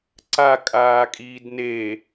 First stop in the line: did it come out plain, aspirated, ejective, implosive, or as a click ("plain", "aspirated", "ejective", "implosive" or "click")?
click